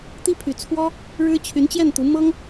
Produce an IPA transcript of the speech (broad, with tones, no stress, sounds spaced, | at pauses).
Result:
t̪ i˥ pʰ y˧˥ t͡sʰ w ɔ˥ | ɻ ɻ̩˥ t͡ɕʰ y˧˥ n t͡ɕ j ɛ˥˩ n t̪ u˧˥ m ɤ˥ ŋ